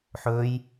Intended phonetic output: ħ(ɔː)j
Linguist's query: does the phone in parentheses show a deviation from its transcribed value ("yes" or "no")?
yes